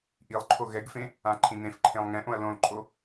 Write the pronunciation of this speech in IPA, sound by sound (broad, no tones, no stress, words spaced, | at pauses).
ʔilˠǃʰo ɣɛɡfẽ | ãǃʰĩn̪ẽfǃʰẽlˠ ŋɛ̃ʔõɐ̯ lõlǃʼo